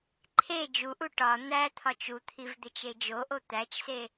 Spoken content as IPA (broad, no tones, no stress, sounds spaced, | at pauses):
ǃʰ e d͡ʒ u ʔ u ʈ ɒ n̪ æ t̪ʰ ɒ t͡ʃ u t̪ʰ i v d̪ e t͡ʃ e d͡ʒ o ʔ o t̪ æ t͡ʃ s e